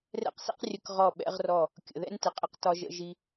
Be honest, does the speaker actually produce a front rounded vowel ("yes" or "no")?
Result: no